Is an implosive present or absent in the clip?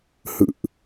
absent